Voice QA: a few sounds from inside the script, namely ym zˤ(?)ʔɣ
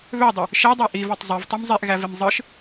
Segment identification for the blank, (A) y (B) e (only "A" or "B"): B